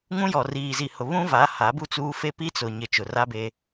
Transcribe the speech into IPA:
ŋũ˦jɔ˨ riː˨zi˨ hʊ˨ βũ˦va˨˦ ha˨˦bu˦t͡suː˦ fe˦pi˦ t͡sʊ˨ɲɪ˨ t͡ʃʊ˨ra˦be˦

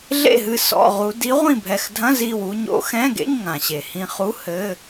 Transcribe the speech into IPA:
ɮḛ˥˨ɦɨ˧ sɔ̰˧˥˧ʁu˧˥ di˧˥ʁʷĩ˥˨bʱɛ˧˩x dʱɐ̃˧˥˧zi˧˩wu˧ ɲo̰˧˥ xɛ̃˧˥˧ɡḛ˧˥˧ɲŋã˩ ɕe˩hĩ˧χu˧˥˧ hɘ˧˥˧

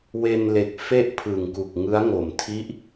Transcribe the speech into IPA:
we˧nle˨˩k̚ fe˥˩ʔpʰɯ˨˩ŋku˨˩k̚ ŋɯ˦˥a̯ŋo˨˩mtʰi˦˥ʔ

